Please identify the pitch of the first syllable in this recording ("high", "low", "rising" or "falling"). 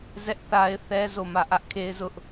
high